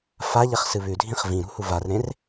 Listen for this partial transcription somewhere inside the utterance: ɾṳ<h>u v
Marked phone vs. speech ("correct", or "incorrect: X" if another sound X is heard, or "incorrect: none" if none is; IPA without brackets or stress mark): correct